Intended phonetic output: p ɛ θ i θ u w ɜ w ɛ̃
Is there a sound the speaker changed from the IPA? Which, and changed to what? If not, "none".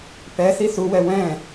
ɜ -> ɛ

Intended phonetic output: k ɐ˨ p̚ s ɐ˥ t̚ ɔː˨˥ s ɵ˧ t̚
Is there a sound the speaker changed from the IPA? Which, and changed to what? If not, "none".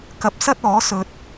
none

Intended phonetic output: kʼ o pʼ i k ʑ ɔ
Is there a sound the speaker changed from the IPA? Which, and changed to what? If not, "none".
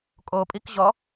none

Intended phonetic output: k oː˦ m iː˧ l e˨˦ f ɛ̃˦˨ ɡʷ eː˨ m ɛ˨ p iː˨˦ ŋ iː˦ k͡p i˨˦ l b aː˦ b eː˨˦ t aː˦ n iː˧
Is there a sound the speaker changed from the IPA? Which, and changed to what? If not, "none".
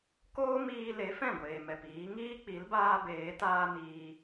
none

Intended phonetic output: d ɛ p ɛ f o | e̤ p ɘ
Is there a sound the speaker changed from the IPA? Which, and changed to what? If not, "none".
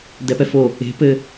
none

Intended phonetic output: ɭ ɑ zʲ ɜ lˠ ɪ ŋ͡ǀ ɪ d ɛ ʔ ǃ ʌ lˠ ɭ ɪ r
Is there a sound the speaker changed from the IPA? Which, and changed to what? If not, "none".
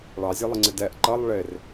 none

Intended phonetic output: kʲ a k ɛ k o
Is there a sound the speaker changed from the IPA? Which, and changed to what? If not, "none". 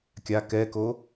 none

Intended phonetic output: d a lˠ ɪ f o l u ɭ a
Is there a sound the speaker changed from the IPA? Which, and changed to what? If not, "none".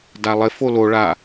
u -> o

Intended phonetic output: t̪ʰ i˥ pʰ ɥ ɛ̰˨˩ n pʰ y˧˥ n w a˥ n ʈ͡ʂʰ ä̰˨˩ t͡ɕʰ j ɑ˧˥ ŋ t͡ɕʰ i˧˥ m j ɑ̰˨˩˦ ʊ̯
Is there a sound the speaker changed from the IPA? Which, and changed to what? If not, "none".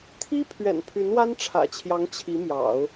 none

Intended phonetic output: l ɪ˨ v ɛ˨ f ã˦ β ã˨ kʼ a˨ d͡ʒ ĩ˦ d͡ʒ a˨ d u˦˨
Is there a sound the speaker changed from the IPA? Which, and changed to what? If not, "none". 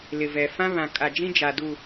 none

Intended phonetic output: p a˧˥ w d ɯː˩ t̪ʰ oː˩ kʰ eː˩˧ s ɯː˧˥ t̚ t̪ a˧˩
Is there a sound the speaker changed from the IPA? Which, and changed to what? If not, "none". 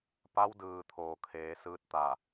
none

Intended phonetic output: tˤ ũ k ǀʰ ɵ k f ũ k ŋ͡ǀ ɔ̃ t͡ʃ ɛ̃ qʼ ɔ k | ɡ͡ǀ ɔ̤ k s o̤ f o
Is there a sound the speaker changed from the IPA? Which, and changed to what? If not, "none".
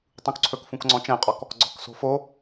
none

